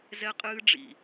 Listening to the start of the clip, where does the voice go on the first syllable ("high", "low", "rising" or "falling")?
high